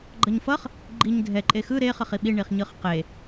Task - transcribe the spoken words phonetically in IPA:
ɡ͡ǃ ʌ ɲ f ʌ χ | ɡ͡ǃ i ɲ dʱ ɛ ǃʼ e x ɯ ɾ e χ ʌ χ i ɓ i ɳ i χ ɲ ɯ χ q e

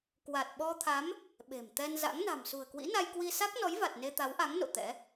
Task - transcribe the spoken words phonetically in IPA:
k w a˨˩ t̚ ɓ ɔ˧ t̪ʰ a˨˦ m | ɓ e̤˨˩ m t̪ ɛ˧ n z a̰˧˥ ŋ n a̤˨˩ m s ṳ˨˩ ə̯ k w ḭ˧˥ n a˧ j k w i˧ s a˦˥ k̚ n ɔ˨˦ j v a˨˩ t̚ n e˧ t̪ a˨˦ w ʔ a˨˦ ŋ n o̰˧˨ t̪ ɛ̰˧˥

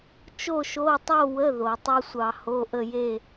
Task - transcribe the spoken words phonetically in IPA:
t͡ʃ o˥˧ ʃ o˧˥˧ tˤ o˥˧ w ə˧˥˧ ð o˨˩˦ tˤ o˥ sʷ ɑ˧ h o˧˥˧ ʔ ə˥˧ j e˥˧

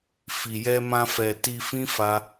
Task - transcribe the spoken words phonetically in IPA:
f i˨ j ɛ˧ m ã˧ f ɛ˨ t i˧ f ĩ˦ f a˦

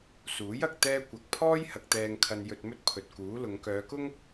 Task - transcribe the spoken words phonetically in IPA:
s uː˨˥ j ɐ˨ k̚ t̪ ɛː˥ kʷ ɐ˧ k̚ pʰ ɔː˥ j h ɐ˨ k̚ t̪ ɛː˨ ŋ kʰ ɐ˨ n j ɵ˧ t̚ m ɵ˥ t̚ pʰ ɵ˨ t̚ k uː˨˥ l ʊ˨˧ ŋ k œː˨˧ k ʊ˥ ŋ

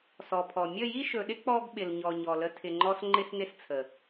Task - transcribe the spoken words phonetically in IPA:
s ɔ˨ pʰ ɔ˨ mʲ ə˦˨ j i˦ ʃ ɵ˨ ɗ ɪ˦ k͡p ɔ˦ ɡ ɓ ɪ˨ l ɲ ɔ˨ ɲ ɔ˨ l ə˧ tʰ ɪ˨ ŋ͡ǃ ɔ˧ s ŋ͡ǃ ɪ˦ s n ɪ˦ s t͡sʰ ə˨

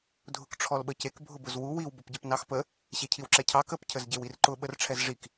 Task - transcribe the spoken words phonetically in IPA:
dʱ ʊ k ʈ͡ʂʰ ɔ l ɓ ə c e k bʱ ʊ b ʊ z w u w i w b ʊ p ɟ ə p n ɑ x p ə | ɕ e cʰ i w ǁ ɛ cʰ ɑ k ə p cʰ ə z ɟ e w i r ǃ ʊ ɓ ə r ʈ͡ʂʰ ɛ z ʐ i k

